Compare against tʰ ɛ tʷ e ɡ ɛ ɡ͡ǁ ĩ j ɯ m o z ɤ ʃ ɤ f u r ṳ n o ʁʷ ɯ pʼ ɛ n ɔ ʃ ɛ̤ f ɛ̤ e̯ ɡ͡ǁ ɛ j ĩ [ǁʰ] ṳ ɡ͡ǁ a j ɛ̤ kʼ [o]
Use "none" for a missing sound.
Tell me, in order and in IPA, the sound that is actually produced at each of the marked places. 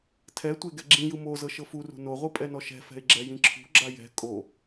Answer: ǁʰ, o

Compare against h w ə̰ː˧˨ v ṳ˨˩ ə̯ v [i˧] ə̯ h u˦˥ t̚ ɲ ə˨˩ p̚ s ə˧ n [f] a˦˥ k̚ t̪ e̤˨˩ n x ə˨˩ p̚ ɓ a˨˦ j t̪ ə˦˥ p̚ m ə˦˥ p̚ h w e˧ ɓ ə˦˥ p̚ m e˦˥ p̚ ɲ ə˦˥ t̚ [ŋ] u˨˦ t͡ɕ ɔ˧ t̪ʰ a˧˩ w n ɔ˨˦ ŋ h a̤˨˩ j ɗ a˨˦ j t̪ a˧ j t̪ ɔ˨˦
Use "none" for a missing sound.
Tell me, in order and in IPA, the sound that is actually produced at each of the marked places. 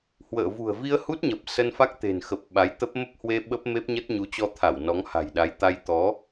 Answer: i˧, f, ɲ

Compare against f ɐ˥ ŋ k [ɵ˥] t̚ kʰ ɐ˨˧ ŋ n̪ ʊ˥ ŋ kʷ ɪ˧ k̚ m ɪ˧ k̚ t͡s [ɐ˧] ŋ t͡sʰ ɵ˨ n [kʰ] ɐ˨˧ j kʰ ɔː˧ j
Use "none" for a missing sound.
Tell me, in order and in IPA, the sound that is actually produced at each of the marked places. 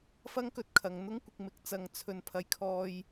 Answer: ɵ˧, ɐ˨, pʰ

